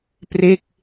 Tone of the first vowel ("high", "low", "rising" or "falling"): falling